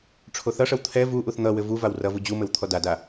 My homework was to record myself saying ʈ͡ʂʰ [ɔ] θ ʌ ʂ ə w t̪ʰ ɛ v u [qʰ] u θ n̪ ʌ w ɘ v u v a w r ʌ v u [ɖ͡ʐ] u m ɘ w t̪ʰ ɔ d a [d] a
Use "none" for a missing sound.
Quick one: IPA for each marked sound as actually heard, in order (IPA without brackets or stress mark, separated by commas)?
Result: o, ʔ, d͡ʑ, d